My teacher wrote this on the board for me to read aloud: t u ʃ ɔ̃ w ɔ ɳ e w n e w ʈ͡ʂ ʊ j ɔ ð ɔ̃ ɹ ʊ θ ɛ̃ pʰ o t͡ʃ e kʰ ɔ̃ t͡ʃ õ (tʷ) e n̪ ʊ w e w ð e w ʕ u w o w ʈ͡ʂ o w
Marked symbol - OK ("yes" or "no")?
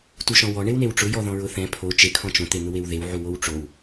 no